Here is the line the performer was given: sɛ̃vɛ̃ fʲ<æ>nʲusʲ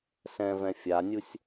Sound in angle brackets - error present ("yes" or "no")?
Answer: yes